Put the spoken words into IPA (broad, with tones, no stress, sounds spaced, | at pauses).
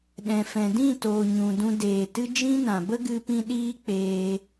ɗ ɛ̃˨ f ɛ̃˨ d ĩ˦˨ t oː˨ ɲ ũ˨ d ũ˧ d eː˨ t ɨ˦ d͡ʒ ĩ˦ n ã˨ b ə˦ ɡ ɨ˧ p ĩ˧ ɗ iː˦ k͡p eː˧